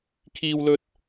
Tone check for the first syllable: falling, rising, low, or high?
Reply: high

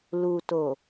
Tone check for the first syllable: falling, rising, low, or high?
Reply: low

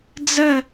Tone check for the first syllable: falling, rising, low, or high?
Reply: falling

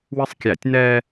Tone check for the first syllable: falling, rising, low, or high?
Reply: high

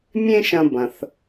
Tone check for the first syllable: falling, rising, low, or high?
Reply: high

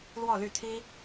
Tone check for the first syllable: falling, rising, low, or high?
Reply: falling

